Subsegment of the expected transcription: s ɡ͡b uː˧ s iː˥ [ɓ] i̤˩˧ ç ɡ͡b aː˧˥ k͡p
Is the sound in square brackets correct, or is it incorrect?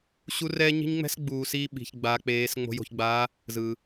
correct